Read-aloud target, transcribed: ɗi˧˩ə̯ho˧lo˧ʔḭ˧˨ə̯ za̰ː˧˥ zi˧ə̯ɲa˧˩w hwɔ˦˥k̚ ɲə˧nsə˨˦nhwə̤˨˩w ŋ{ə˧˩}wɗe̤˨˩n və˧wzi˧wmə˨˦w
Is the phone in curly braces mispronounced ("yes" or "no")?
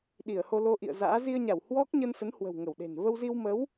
no